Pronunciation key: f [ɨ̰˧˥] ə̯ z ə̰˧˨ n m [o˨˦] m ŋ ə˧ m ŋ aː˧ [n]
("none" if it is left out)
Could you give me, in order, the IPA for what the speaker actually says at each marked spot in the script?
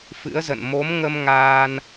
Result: ɨ̰˧˥, o˨˦, n

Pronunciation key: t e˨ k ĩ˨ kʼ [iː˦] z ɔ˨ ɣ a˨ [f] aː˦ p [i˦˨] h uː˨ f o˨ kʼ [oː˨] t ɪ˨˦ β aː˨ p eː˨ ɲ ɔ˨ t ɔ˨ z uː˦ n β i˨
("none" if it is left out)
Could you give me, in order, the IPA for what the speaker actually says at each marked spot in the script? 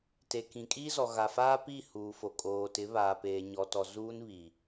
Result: iː˦, f, i˦˨, oː˨

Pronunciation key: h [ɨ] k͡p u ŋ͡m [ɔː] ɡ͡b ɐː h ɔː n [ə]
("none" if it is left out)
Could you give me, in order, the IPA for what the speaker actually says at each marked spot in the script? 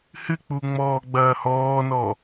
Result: ɨ, ɔː, ɔ

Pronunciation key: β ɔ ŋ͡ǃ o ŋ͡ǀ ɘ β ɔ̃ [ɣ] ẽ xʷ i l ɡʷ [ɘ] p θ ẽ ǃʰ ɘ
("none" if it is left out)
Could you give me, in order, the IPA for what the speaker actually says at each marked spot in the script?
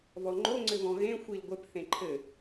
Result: ɣ, ɘ

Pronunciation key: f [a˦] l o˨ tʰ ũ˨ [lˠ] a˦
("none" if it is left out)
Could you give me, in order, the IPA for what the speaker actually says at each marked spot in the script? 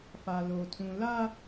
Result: a˨, l

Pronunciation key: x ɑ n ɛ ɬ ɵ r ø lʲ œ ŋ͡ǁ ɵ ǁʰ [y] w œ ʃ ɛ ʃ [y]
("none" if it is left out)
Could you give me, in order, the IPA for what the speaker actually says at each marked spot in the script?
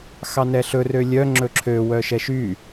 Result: ø, y

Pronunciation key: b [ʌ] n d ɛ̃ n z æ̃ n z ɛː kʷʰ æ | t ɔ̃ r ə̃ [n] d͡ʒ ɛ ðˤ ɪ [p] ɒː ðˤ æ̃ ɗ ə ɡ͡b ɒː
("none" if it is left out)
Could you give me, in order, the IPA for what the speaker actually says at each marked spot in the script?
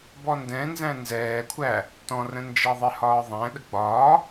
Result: ɔ, n, h

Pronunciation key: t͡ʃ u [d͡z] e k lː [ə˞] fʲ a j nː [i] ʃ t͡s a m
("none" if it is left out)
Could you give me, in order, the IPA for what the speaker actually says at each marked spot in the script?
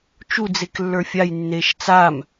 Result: d͡z, ə˞, e

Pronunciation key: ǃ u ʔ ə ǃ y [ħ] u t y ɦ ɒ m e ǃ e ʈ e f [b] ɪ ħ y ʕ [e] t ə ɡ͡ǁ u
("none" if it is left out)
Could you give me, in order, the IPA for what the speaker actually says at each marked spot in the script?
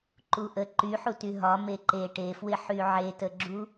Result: ħ, w, e

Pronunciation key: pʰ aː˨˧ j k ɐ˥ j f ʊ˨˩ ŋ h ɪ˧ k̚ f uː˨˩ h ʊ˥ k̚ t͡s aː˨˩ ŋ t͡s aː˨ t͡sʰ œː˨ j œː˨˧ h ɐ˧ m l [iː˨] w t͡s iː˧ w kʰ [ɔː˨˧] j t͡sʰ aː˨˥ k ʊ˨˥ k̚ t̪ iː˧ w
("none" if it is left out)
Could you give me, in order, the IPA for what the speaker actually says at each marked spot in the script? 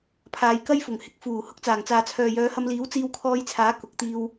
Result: iː˨˥, ɔː˧

